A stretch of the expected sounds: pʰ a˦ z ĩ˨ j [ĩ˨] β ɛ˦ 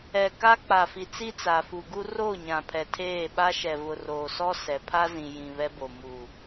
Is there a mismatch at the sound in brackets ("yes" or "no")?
no